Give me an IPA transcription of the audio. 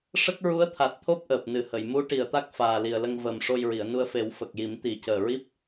ʂ ə˦˥ k̚ ɹ u˧˥ ə̯ t̪ʰ a˨˩ t̚ t̪ʰ o˦˥ p̚ ʔ əː˨˩ p̚ n ɨ˨˩ h ə˨˩˨ j m u˧˥ ʈ i˨˩ ə̯ t̪ a˦˥ k̚ f aː˨˩ l i˨˩ ə̯ l ə˧ ŋ v əː˨˩ m ʂ o˧ j ɹ i˨˩˨ ə̯ n u˧ ə̯ f e˨˩˦ w f ə˨˩ k̚ j i˨˩˦ m t̪ i˨˩˦ c əː˨˩ ɹ i˦˥ p̚

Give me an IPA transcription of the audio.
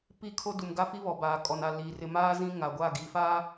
p i˦ kʰ o˦ d u˨ m ɡ a˦ f i˦ β ɔ˨ b aː˨ kʼ ɔ˨ n a˨ l iː˨ r ɪ˨ m aː˦ z ĩ˦ ŋ a˨ ɡʷ a˦˨ ɡ i˨ f aː˦

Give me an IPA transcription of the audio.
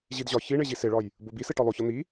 ʑ i d ʑ ɒ ç i ɳ e ʑ i s e ɭ ɒ j | b o b i s e ʈ ɒ lˠ o ç ɒ n̪ i

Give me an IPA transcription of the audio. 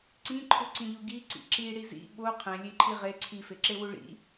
ǀ ĩ ǃʰ u ǀ ĩ ʎ u ɡ i ǀ ḭ ǁ i ɽ i z ḭ ɓ o qʰ ẽ lʲ e ǃʰ i ʁ e ǀʰ i f e ǁ e w u ɭ ḭ

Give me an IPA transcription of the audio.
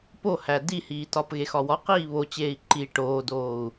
p o h æ d i h iː t ɒ p ɣ e x ɒ w ɒ q iː β o t͡ɕ eː i̯ ǃ i ʈ oː d oː u̯

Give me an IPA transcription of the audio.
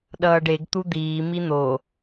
ɗ ʌː ɖ e ɡ t̪ u d̪ iː m i n̪ o

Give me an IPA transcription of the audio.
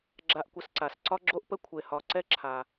ɡ͡ǁ a˨ ʔ kʷ ə˨ s ǀ a˩ s ǀ ɒ˦ ɡ͡ǁ o˦ ʔ p ə˦ kʷʰ e˨ h ɒ˨ ǀ ɛ˦ ǁʰ a˨

